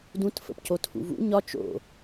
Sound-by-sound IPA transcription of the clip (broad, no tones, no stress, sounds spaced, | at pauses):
d ũ t f ə̰ p c o tʰ ṵ v ṵ ɲ ɒ t͡ʃ o̰